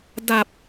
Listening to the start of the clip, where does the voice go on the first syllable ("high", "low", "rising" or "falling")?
low